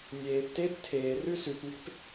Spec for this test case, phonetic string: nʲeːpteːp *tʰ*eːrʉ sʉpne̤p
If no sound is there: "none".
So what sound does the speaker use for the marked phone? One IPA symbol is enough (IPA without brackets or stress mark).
tʰ